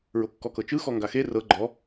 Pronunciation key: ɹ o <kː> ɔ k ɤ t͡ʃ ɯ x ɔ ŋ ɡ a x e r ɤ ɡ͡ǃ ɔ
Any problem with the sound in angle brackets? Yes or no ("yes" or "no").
no